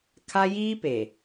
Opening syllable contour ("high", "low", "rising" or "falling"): high